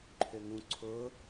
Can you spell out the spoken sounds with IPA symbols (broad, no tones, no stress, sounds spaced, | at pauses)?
ǃʰ ø ŋ ũ ǀʰ ʊ